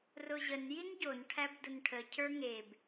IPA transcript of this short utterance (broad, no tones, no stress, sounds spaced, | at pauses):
r ʊ ʑ ə n j i n ɟ o n ʈʰ æ b d ʊ n ʈʰ ə cʰ ə˞ ŋ e b